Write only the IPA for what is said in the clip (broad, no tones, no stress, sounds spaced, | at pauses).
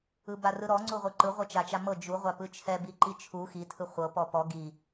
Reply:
ɯ b a r ɯ ɾ ɔ ŋ͡ǀ u ʁʷ ɯ ǃ ɯ ʁʷ ɤ t͡ʃ a t͡ʃ a m ɤ d͡ʒ u ʁʷ a p ɯ t͡ʃʰ ɛ b i ǃ i t͡ʃʰ u x i tʰ ɯ χʷ ɤ p ɔ p ɔ ɡ i